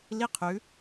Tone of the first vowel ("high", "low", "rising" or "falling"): high